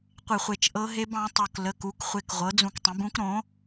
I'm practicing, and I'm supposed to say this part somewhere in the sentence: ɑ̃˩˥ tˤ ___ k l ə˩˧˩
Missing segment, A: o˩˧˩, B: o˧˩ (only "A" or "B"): B